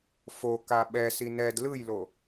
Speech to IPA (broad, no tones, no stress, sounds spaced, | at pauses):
f o k a ɓ ɛ s i n ɛ d l ɯ j l o